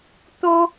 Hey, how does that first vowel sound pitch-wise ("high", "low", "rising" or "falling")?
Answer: high